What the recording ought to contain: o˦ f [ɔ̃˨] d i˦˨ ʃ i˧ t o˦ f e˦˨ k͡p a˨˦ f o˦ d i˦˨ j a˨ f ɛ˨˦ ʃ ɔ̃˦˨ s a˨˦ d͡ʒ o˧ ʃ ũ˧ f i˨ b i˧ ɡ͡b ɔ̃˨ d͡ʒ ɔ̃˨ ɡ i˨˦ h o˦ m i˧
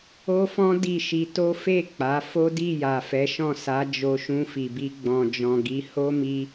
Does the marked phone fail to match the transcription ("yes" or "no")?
yes